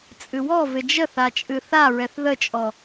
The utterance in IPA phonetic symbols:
t͡sʼɨwɔ vɪd͡ʒə θat͡ʃʼɨθa ɹɛθðət͡ʃʼɔ

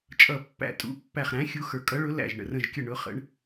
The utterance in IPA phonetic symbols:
t͡ʃʼʌ˧˩ pːæ̰˧˩tʼṵ˨˥ pːæ˧˩χɾæ̃˨˥ xʲu˨˥ xə˞˨˥ kʼʌ˨˥ɭʊ˨˥ læ̰˧˩ʒ ɳə̰˧˩rə̃˧˩ʒkʲə˧˩ ɳʊ˨˥χə̰˨˥ɳ

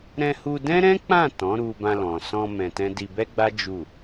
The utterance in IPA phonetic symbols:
ɾɛ̃˧hu˧dɛ̃˦ ɾɛ̃˦k͡pã˦˨ tɔ̃˨˦ɾu˧bã˧ lɔ̃˨sɔ̃˧ mɛ̃˧tɛ̃˦ di˧bɛ˦ɡ͡ba˦ d͡ʒu˦˨

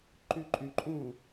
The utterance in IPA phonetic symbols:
ǃyǃʼyǃʼũ

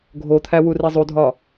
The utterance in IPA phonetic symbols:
ɡʱot̪ʰæ wurizˤudʱɒ

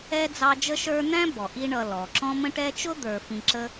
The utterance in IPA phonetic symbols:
ɛ˥d͡zɑ˦ d͡ʒə˦ʃə˞˦n̪æ̃˥ bɔ˩ ʔi˦ɳʌ˨ lɔ˩ ǁɔ̃˥ mə̃˦ʈɛ˦t͡ʃʊ˥ d̪ə˞˨fĩ˨ ǁə˦

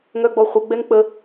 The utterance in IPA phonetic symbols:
ŋœɡ͡bɔχʷə ɡ͡bɛŋk͡pə

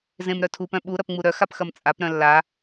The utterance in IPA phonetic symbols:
zẽmɾœtʰup œ̃ɓu ɾɐpŋ͡muɾœ xapxɐmt͡sʼap ɾœ̃lːa

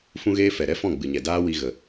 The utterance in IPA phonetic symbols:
fũ˦ɣeː˦fɛ˨ ɾɛ˦fɔ̃˦˨ɡ͡bɨ˨ɲɛ˨ daː˦ wi˧ɣə˨

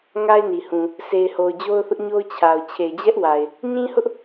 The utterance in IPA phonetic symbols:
ŋa˦ɪ̯ni˨hũ˨ | sʰe˨ɪ̯ho˨ʊ̯ d͡ʑo˦ʊ̯θʊ˦ʔɲo˦ʊ̯ t͡ɕʰa˨ʊ̯ t͡ɕʰe˨ɪ̯d͡ʑɛ˦ʔwa˨ɪ̯ | ɲĩ˦hʊ˦ʔ

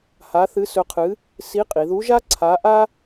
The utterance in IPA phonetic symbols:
ha˧˥θɨ˧˥sɵ˧˥qʰɨ˧˥ | si˧˥qʼi˩˧ðu˧˥ʒa˥ ǀʰa˧˥ ʔa˥

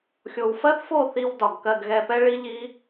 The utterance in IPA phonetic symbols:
xʲo˨wfɜ˦θfo˦˨ θi˧wdɒ˨ɡ kɜ˧ɡɣɛ˧pɛ˦ ɭi˦ʎi˦

